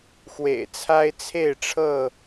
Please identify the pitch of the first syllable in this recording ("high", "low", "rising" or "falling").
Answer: low